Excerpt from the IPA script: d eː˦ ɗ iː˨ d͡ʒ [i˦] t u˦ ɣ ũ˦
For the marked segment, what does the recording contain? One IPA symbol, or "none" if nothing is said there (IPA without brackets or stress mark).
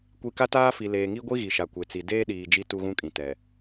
i˦